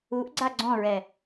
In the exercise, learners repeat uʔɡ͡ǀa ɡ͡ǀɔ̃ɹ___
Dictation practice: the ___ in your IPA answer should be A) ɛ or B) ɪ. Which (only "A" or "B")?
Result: A